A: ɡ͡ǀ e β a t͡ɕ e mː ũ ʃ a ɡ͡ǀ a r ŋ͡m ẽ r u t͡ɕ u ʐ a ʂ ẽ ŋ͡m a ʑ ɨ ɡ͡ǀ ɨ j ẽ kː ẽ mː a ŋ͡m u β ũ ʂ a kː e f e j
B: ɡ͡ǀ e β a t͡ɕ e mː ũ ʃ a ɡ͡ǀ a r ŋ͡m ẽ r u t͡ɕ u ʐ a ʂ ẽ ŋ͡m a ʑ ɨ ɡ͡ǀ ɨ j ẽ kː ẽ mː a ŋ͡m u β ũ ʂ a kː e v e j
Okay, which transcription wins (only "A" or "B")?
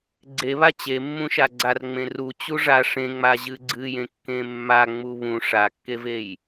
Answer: B